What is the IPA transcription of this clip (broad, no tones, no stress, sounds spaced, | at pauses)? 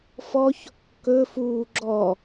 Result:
f ɔ ç | k ɵ f uː ɡ͡ǁ ɔ